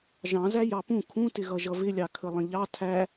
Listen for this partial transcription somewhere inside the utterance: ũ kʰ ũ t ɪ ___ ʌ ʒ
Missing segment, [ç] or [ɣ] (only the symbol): ɣ